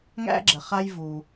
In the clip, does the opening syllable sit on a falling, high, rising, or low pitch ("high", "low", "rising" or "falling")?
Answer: high